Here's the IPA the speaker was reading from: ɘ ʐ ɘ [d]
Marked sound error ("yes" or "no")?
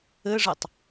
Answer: yes